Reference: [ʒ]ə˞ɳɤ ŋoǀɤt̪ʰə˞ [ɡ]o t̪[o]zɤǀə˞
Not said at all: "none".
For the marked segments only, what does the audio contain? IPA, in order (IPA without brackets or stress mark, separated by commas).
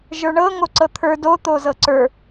ʒ, d, o